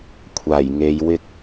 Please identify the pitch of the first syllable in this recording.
low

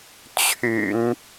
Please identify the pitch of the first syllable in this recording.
low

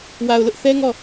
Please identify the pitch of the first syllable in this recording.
low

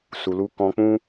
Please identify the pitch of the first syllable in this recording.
low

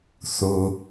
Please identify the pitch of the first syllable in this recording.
low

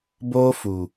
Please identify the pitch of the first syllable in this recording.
high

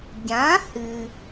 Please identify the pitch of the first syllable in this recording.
rising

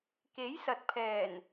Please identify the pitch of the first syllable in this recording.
rising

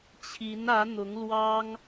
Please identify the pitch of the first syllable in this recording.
rising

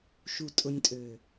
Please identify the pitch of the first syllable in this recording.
low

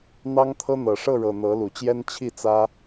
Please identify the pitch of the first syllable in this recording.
high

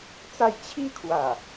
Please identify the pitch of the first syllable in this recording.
falling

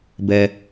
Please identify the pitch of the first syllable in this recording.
low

